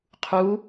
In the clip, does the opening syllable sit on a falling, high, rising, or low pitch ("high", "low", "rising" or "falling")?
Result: rising